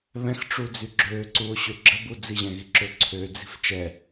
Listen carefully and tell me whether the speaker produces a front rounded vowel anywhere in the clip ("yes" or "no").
yes